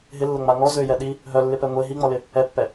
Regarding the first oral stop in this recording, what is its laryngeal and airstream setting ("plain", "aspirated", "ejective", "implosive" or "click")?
implosive